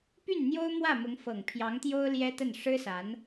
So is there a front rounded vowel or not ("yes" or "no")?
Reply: yes